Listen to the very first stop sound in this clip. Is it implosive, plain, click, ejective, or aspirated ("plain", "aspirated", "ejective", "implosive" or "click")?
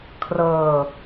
aspirated